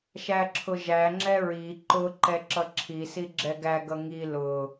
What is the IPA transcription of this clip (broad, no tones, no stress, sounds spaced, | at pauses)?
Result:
ʃ æ ǁʰ ʊ ʒ æ ŋ͡ǁ ɛ ɹ i ǃ ʊ ǃ ɛ ǁ ʌ ǁʰ i s i ɡ͡ǁ ɛ ɡ æ ɡ ʌ ŋ i l ʊ